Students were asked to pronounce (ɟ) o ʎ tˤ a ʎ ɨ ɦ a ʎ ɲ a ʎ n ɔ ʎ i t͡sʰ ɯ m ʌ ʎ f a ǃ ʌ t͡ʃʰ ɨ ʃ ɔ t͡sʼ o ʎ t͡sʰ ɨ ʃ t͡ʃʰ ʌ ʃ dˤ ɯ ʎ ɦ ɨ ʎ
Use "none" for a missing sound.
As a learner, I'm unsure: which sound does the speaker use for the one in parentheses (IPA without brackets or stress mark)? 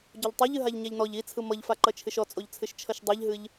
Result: ɟ